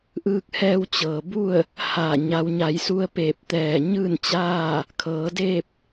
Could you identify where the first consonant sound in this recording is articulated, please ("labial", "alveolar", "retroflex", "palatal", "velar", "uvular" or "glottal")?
glottal